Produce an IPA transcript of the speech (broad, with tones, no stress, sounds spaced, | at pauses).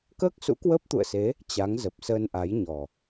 k əː˦˥ k̚ s ṵ˧˥ k w əː˦˥ p̚ t̪ ṵ˧˨ ə̯ s e˨˦ | t͡ɕ a˨˦ ŋ z ə˨˩ p̚ s əː˧ n ʔ a˨˦ j ɲ ɔ˨˩